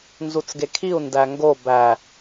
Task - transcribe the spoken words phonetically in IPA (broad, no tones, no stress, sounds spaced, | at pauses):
n z u t͡s ɡ e kʰ i u̯ n d æ ŋ ɡ o b æ